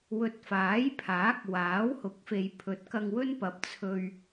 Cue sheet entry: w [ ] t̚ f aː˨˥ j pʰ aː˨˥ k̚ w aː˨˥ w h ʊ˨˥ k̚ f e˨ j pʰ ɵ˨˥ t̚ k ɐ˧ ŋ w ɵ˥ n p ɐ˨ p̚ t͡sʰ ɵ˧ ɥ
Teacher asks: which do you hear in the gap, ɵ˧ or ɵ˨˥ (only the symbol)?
ɵ˨˥